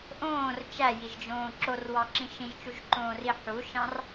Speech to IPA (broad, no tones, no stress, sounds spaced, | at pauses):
ʔ õː r t͡ʃ æ j i ʒ d͡ʒ õː ǁ o r w ɑ ǁ ĩ ʃ ĩ ʒ t͡ʃ u ʒ ǃ õː r i ħ u ʃ ɑ̃ r